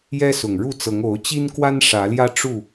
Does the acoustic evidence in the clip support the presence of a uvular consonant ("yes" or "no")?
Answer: no